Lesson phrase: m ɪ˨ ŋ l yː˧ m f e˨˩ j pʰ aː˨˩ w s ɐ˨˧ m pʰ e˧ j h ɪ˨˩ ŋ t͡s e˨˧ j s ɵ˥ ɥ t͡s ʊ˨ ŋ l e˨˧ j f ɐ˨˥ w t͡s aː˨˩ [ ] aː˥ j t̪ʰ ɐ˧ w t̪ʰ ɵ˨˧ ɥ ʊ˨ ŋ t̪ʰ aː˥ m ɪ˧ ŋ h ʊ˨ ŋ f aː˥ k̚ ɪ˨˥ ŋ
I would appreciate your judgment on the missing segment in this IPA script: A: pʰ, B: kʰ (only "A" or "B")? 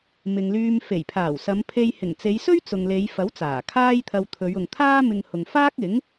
B